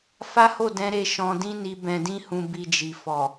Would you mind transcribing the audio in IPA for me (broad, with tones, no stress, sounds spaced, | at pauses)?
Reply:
f a˦ h o˦˨ d ɛ̃˧ ɾ e˧ ʃ ɔ̃˧ d ĩ˦ n i˧ b ɛ̃˧ d ĩ˦ h ũ˧ b i˧ d͡ʒ i˨ f ɔ˨